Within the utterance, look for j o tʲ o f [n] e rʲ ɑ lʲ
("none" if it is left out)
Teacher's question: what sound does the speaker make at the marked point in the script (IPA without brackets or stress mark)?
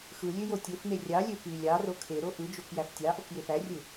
n